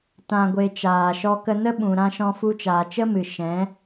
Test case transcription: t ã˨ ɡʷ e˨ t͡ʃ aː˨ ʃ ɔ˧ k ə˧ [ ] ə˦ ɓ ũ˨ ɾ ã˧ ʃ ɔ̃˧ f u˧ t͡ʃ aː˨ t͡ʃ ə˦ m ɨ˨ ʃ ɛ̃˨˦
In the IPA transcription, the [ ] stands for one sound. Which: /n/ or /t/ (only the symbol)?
n